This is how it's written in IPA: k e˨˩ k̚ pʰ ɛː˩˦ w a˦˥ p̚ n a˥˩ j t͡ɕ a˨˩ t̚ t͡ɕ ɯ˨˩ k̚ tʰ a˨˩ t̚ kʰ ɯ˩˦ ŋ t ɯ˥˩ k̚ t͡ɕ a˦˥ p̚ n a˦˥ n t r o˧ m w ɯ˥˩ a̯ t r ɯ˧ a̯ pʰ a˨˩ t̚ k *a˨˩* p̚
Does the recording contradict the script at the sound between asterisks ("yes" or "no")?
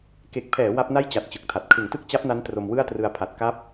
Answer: yes